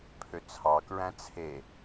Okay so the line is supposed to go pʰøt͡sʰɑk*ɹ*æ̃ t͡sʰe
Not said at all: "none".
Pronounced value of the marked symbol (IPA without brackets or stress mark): ɹ